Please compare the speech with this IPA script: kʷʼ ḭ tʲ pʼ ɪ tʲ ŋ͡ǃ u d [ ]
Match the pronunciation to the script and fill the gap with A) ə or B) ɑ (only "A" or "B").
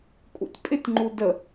A